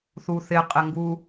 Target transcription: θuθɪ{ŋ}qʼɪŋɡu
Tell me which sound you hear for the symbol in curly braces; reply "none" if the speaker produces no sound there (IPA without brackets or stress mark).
none